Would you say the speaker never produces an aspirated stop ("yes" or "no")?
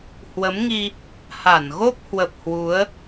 yes